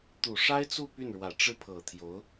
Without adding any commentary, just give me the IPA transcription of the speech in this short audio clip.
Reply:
t̪u˨˩ʂa˥ɪ̯t͡su˥˧ py˥˩nɻwä˨˩ ʈ͡ʂɻ̩˥˩pʰɤ˨˩t̪ʰjo˧˥ʊ̯

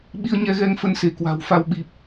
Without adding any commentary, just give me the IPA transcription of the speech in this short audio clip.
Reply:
ɓi˧ə̯ɲɛ˧ɣɛ˧ŋ fə˧nse˧˩kwa̤˨˩wfa˧w ɓi˨˩p̚

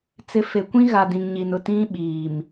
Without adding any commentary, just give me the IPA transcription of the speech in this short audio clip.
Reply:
t͡sɪ˨˦fe˨kʷĩ˦ɣa˨ dĩ˨ŋɲi˨nʊ˨ tĩ˦ɓiː˨m

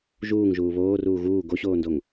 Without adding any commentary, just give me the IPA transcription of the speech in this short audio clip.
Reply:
ʒuːŋʒuː βoːruː ɣuː ɡoɕoːndoŋ

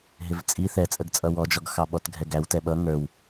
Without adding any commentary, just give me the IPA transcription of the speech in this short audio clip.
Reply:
ɦɪvt͡sʼi θɛt͡sʼəɡt͡sʼʌ wɔd͡ʒɔɡ xɑɓɔtɡʱɛɡæw tɛɓʌ ŋə˞w

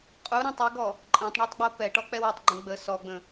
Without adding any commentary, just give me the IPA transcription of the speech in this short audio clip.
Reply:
qʼu ɾɛ̃tˤ ɛɡɔ | ǃʼɛ̃tˤɳɔtˤɡ͡bo pɛʈɔk͡pɛw ətˤɡ͡ǃə̃ ɡ͡bə sɔɡ͡bə̃

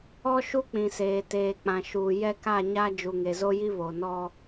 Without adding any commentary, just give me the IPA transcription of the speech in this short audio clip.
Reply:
ɔ˦ʃu˦k͡pĩ˨seː˨ teː˨k͡pã˨ʃuː˨ jɛ˦ka˦˨ɲa˦ d͡ʒu˨ŋe˨zo˦ji˦ βo˨nɔ˦

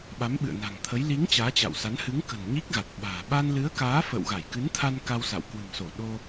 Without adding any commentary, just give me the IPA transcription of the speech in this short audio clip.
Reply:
ɓa˨˦mɓɨ̰˧˨ə̯na̤˨˩ŋt̪ʰə˨˦j li˨˦ŋ t͡ɕaː˨˦t͡ɕa̰˧˨wsa˨˦n hɨ˨˦ŋkə̤˨˩n ɲi˦˥k̚ɣa˨˩t̚ ɓa̤ː˨˩ ɓa˧nlɨ˨˦ə̯kaː˨˦ fə̰ː˧˨wɣa˧˩jkɨ˨˦nt̪ʰa˧n ka˧wsa̰˧˨w kwɨ̤˨˩mso˧˩ ɗo˧

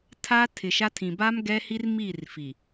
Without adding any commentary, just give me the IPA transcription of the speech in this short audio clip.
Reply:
tʰaː˦tʰɪ˨ʃa˦ tʰĩ˨baː˦m ɡɛ˦hi˦rmiː˦˨r fi˨

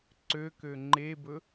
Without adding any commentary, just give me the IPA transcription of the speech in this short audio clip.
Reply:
ǀøkø ŋ͡ǃebɵ

